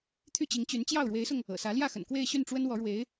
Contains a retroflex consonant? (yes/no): yes